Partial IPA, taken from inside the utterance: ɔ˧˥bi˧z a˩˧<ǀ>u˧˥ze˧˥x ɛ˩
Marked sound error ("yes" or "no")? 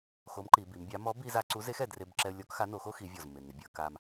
no